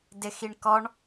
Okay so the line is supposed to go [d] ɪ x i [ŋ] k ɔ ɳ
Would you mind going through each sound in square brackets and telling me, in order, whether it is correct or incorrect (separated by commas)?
correct, incorrect